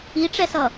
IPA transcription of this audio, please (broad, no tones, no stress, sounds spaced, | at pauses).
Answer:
i ʈ͡ʂ ɛ s ʌ